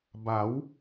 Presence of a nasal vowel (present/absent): absent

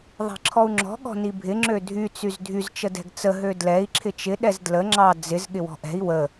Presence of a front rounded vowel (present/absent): present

